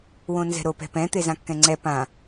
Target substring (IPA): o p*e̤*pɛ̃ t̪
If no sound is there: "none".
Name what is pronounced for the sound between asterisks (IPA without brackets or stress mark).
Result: ɛ̤